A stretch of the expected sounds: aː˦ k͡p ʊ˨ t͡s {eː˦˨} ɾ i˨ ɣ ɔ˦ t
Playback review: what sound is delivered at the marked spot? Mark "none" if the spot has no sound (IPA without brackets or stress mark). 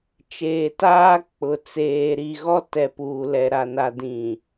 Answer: eː˨